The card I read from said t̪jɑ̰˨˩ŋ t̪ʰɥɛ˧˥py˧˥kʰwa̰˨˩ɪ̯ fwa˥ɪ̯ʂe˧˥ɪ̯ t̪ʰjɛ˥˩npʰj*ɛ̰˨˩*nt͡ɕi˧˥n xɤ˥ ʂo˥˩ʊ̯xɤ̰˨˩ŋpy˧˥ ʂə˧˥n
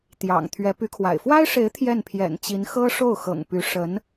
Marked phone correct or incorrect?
correct